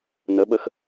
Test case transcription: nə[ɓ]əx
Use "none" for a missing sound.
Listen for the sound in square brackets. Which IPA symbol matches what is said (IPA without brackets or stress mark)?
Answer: ɓ